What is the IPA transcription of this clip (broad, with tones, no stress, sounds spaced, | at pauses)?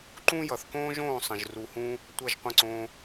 ǃ ũ˥ j ʌ˩ θ k õː˥ ʒ õː˥˩ sˤ ə̃˩ ʒ r u˩ h ũː˧ | tʷ ʌ˥˩ ʒ qʷ ə̃˥˩ ǀ õː˧